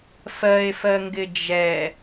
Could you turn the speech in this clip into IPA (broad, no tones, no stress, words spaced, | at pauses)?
fɜe̯fɜŋɡɪ d͡ʒɛ